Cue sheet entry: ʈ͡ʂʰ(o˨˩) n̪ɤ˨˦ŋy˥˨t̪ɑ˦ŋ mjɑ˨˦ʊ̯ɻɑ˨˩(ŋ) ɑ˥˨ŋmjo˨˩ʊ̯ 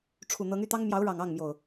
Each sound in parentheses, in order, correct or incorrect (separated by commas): incorrect, correct